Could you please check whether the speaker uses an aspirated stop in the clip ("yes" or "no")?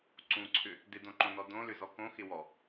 yes